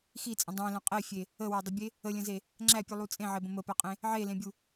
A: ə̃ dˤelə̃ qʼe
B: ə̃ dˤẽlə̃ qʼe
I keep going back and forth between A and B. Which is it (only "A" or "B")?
B